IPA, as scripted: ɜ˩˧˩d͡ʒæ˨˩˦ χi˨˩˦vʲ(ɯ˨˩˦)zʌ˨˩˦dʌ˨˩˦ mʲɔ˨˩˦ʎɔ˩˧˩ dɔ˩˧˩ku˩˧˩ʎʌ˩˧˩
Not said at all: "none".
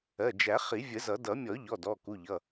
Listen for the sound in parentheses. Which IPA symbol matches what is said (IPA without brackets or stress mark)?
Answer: ə˨˩˦